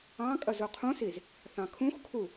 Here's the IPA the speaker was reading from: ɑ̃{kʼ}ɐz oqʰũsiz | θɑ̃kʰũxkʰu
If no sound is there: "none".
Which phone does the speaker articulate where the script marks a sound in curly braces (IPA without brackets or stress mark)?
kʼ